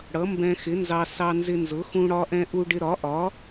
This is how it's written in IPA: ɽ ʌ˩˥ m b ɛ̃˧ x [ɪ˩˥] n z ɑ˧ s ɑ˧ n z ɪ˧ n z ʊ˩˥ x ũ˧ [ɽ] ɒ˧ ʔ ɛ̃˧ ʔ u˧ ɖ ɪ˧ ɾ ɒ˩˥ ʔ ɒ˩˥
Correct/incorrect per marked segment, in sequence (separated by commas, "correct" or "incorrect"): correct, correct